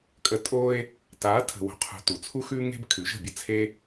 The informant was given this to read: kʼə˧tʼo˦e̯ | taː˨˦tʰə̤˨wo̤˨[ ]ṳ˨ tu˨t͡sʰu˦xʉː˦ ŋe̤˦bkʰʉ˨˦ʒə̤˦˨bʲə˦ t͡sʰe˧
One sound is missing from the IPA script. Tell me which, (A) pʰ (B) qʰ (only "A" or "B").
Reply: B